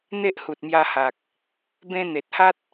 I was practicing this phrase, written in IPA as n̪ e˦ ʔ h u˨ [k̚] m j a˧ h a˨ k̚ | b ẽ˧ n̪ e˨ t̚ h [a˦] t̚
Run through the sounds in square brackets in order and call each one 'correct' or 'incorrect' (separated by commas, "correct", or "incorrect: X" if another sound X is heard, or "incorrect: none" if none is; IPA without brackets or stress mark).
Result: incorrect: t̚, correct